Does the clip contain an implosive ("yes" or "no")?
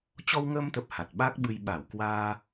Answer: yes